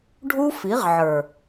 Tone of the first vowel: high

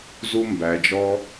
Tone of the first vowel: high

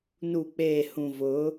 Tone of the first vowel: low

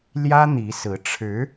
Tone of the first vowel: high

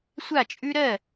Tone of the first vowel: falling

